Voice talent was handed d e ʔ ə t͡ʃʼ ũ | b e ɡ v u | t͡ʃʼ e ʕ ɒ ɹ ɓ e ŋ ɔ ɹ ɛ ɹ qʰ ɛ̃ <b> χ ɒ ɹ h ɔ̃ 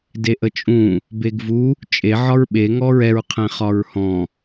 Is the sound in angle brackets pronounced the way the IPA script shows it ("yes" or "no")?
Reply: no